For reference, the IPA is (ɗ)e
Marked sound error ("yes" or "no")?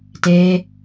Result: yes